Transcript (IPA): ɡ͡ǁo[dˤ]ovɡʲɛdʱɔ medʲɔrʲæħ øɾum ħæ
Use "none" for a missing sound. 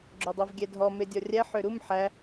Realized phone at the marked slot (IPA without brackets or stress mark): dˤ